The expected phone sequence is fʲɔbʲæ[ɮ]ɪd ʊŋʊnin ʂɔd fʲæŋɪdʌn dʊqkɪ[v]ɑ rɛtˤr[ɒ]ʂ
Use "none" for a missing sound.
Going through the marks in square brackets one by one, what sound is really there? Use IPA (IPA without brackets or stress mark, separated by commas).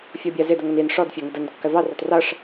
z, v, ʌ